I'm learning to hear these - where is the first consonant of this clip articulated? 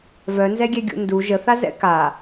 lips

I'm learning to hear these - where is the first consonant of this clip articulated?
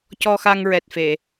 palate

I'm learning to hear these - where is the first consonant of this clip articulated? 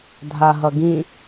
tongue tip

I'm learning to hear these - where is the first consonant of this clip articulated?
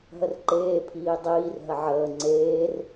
throat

